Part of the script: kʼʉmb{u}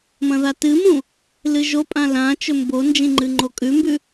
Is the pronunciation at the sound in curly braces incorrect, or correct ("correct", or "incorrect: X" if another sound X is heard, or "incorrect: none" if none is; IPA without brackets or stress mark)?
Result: incorrect: ʉ